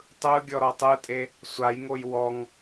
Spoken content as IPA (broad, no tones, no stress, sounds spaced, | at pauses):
tˤ ɯ ɡʲ ɔ ɾ ɔ tˤ ɯ tʼ e | sʷ a j ŋ o j w ɔ ŋ